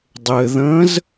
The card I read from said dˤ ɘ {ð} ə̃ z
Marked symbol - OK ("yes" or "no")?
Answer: yes